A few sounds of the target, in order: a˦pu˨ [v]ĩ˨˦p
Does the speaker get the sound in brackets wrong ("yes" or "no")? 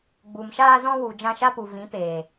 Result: no